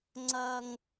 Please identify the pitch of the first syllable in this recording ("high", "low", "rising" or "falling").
high